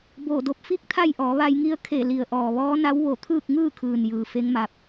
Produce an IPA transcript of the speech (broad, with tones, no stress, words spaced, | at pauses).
boː˧˩do˧p̚ fi˥˨k̚t̪ʰa˥˨jʔɔː˩˧ ʋa˧jŋi˧˥ə̯ kʰe˧˩ li˩ə̯ʔɔː˩ ʋɔː˧˥na˧˥w ʋo˧˩t̪ʰɯː˥˨k̚ŋɯː˥˨kʰɯː˩n jɯː˩fe˧˥ŋma˧p̚